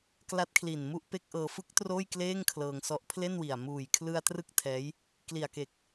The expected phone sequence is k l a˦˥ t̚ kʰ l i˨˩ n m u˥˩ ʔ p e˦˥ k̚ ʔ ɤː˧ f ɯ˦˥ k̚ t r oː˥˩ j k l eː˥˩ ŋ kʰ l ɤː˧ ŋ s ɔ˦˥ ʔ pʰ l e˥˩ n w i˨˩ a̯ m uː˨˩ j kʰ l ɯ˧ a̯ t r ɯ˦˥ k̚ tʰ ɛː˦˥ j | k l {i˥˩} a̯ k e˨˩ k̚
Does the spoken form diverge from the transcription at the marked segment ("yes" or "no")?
yes